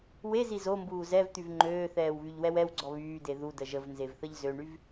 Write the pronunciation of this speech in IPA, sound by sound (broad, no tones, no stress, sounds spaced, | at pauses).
w e z i z o m b uː z ɛ v t̪ y v ŋ͡ǃ øː θ ɛː w β y ʎ w ɛ w ɛ w ɡ͡ǀ ɔ β yː d e ð u d ə ʒ ə v n z e v θ ə ʎ z ø ɳ y v